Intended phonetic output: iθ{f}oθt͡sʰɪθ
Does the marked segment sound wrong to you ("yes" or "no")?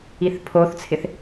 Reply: yes